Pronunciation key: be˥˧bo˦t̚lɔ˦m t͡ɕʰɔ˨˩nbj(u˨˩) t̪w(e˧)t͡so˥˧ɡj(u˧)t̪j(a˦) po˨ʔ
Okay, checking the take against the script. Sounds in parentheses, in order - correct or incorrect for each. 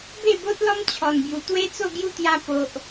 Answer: correct, incorrect, incorrect, incorrect

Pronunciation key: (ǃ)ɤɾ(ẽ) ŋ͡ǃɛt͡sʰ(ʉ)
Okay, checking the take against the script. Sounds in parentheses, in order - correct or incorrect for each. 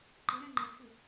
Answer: correct, incorrect, correct

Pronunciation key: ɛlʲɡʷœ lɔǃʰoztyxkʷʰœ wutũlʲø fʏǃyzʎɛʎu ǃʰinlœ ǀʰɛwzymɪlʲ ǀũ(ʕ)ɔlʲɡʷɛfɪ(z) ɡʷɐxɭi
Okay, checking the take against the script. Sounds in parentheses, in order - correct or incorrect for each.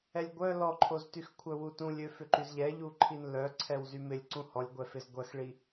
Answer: incorrect, correct

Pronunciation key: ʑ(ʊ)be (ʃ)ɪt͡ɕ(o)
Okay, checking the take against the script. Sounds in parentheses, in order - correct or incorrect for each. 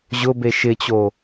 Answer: correct, correct, correct

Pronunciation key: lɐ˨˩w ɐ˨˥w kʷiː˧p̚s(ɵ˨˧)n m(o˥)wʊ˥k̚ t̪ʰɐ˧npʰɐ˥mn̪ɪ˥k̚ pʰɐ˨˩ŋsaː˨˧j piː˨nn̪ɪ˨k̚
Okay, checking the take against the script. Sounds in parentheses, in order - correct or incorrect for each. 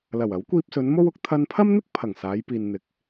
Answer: correct, correct

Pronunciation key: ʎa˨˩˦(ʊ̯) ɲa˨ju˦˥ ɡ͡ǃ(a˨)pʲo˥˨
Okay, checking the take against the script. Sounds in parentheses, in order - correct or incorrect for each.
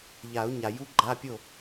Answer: correct, incorrect

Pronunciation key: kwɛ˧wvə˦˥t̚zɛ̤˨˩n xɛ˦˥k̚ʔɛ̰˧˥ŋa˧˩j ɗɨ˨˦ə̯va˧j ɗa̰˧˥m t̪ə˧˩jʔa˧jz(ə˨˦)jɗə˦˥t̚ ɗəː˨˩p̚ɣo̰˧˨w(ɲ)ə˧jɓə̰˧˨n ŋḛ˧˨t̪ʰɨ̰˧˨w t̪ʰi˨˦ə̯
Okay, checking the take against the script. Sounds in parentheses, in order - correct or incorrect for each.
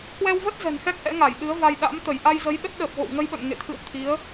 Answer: correct, incorrect

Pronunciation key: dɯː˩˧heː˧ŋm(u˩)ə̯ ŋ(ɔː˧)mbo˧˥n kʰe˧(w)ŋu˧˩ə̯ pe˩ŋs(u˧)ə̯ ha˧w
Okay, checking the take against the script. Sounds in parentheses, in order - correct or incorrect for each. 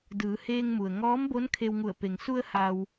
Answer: correct, incorrect, correct, correct

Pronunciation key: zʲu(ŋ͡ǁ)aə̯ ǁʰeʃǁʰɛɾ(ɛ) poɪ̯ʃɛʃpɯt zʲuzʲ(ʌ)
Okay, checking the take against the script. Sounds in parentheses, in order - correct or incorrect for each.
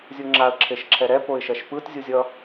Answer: correct, correct, correct

